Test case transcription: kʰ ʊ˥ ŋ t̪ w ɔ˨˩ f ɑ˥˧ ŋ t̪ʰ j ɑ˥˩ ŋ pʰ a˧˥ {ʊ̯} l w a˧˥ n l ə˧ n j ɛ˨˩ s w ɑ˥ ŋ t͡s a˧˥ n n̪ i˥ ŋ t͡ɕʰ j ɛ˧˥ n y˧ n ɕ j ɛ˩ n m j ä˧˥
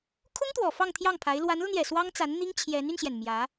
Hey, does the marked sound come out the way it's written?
no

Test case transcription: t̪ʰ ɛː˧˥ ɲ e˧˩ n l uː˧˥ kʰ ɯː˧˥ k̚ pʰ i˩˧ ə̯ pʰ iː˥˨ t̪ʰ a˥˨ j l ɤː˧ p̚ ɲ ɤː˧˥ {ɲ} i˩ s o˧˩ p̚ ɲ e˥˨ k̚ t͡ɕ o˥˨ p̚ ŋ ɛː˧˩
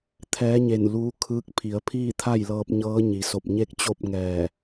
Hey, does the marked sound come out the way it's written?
yes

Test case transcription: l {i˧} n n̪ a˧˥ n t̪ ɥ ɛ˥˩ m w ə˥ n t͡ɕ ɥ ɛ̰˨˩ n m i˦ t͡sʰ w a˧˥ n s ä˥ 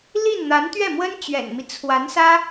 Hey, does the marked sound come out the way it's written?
no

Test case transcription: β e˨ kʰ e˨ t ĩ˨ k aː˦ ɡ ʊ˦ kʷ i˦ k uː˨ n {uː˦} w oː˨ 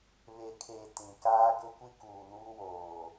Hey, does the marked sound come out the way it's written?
yes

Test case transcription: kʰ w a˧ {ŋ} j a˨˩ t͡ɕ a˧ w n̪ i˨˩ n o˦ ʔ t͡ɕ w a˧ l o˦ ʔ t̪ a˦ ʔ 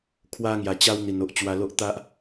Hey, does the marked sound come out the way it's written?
yes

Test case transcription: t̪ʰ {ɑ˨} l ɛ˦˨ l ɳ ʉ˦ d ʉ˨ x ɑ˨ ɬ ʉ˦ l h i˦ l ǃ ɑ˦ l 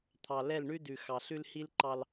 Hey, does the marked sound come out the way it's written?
yes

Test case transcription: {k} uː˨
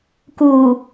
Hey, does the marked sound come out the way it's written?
yes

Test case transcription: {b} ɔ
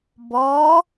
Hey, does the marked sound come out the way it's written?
yes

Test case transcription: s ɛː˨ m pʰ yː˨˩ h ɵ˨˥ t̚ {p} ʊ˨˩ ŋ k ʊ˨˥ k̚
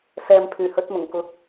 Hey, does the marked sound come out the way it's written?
no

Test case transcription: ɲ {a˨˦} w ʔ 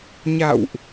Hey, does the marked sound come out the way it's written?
no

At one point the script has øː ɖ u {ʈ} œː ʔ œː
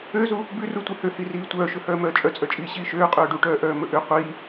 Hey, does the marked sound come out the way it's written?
yes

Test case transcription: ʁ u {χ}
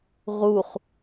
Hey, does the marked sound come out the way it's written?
yes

